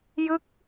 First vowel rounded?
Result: no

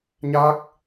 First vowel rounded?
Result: no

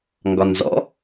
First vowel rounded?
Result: yes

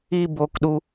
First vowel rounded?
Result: no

